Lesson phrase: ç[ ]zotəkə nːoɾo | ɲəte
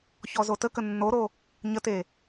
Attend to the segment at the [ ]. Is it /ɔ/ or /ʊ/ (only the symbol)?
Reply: ɔ